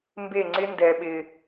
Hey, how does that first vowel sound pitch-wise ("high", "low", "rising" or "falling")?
falling